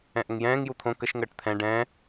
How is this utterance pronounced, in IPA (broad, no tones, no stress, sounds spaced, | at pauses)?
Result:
ɛ̃ ʔ ə ŋ j ɛ̃ː ŋ j u t̪ʰ õ k ə ʃ ŋ əː ʈ t̪ʰ ɛ̃ ɖ ɛ̃